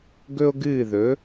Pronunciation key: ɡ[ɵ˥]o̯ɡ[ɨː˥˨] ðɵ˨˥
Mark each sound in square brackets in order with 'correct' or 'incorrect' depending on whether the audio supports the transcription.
correct, correct

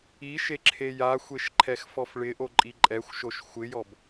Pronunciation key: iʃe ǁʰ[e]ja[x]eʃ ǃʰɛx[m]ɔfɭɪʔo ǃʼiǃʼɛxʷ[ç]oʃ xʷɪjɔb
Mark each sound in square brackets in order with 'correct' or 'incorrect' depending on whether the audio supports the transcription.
correct, incorrect, incorrect, incorrect

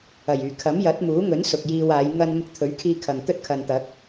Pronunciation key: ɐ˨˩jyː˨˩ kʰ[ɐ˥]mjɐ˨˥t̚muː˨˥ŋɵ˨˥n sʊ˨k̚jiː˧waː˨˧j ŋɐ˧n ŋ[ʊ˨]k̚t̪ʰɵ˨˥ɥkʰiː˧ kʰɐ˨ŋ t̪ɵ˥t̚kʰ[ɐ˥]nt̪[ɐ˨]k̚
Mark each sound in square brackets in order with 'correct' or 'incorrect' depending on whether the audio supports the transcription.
incorrect, incorrect, incorrect, incorrect

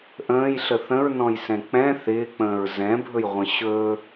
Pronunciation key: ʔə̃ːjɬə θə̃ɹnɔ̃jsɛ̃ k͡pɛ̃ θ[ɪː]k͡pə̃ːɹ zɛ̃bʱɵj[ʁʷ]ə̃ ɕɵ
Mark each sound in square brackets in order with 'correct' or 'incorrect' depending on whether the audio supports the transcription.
correct, correct

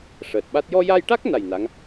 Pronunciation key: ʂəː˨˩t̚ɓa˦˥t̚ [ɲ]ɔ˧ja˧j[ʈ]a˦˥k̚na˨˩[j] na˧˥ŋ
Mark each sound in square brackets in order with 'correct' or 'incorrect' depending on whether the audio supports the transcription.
incorrect, correct, correct

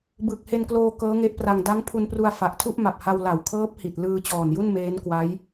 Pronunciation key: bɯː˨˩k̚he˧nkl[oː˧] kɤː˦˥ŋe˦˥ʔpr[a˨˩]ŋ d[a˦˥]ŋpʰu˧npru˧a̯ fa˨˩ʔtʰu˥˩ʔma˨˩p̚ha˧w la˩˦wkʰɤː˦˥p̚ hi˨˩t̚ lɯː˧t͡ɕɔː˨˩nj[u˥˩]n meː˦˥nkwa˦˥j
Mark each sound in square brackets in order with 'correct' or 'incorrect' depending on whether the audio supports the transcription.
correct, incorrect, correct, correct

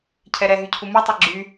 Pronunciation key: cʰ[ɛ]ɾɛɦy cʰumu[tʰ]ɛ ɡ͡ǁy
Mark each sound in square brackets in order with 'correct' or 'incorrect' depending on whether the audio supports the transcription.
correct, incorrect

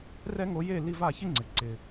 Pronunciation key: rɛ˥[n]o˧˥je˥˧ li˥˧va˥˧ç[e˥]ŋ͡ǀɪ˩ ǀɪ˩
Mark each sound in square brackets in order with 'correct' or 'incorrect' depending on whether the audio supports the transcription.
incorrect, incorrect

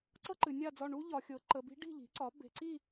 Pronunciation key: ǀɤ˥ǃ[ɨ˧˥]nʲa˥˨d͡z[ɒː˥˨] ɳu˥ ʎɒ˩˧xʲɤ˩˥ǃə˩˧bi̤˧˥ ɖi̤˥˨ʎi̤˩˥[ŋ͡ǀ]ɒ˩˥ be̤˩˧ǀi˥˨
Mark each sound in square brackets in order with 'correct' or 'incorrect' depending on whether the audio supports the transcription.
incorrect, incorrect, incorrect

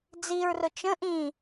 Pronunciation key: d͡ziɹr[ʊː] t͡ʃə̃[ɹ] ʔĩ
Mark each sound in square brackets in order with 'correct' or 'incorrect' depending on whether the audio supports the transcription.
incorrect, incorrect

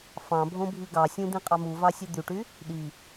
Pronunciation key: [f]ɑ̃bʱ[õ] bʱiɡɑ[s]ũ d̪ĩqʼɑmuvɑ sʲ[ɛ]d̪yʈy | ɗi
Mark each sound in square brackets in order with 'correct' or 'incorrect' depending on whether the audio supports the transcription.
correct, correct, incorrect, incorrect

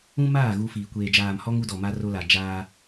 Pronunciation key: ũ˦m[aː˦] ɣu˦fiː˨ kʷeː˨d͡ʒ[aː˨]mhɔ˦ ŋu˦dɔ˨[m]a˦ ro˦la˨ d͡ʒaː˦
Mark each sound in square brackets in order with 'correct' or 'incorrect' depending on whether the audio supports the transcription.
incorrect, correct, correct

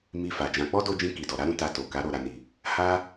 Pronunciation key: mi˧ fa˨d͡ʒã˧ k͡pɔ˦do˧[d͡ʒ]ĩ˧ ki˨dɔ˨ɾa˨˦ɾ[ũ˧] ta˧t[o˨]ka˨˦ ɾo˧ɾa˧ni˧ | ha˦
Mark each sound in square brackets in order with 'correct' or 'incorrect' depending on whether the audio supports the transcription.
correct, correct, correct

